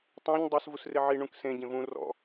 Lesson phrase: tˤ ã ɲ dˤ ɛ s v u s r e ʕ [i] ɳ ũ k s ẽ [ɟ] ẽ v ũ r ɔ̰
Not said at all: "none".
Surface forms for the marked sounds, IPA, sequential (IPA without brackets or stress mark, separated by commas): i, ɟ